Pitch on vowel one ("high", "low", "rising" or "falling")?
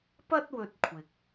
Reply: high